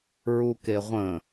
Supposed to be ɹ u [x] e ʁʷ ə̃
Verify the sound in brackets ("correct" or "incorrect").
incorrect